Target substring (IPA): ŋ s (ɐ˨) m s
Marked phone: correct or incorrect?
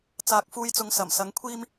incorrect: ɐ˨˩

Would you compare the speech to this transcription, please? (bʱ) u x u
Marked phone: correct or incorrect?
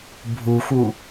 correct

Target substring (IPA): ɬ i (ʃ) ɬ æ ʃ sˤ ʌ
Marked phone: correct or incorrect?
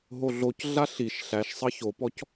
correct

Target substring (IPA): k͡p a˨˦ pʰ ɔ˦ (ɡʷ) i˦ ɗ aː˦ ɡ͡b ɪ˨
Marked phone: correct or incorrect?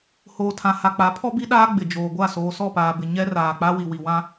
incorrect: b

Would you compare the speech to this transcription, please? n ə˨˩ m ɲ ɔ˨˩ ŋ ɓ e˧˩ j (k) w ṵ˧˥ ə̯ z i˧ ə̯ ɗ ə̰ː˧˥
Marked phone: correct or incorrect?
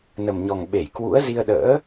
correct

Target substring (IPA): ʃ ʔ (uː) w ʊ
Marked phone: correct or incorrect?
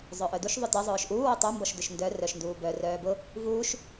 correct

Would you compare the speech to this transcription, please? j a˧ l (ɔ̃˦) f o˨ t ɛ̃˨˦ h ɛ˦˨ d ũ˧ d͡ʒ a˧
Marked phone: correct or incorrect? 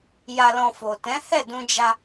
incorrect: ɔ̃˧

